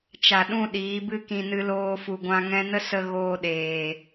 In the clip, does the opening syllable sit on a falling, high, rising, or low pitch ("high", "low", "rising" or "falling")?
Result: low